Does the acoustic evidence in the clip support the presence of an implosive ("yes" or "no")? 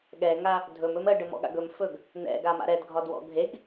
yes